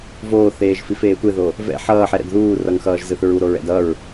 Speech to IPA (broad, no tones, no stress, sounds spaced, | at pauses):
v oː θ eː ʒ f i f eː tʷ e ð o | v ɛ̰ ħ ʌː ħ ɛ ɾ ɛ̰ d ð uː r ʌ ŋ x ʌː ʒ z ɯ θ ɹ u ɾ o ɹ ɛ̰ d ʌ ɹ